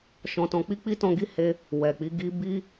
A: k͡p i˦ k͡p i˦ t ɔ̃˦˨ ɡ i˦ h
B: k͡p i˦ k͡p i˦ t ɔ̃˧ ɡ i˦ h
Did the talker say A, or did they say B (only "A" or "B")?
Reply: B